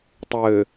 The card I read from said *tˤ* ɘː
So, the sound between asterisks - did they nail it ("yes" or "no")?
yes